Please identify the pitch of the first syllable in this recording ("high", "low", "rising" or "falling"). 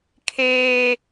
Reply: high